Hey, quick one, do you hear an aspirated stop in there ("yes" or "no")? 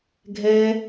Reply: no